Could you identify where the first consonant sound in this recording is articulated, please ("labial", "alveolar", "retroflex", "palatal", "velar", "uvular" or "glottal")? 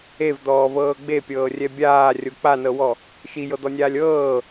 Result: labial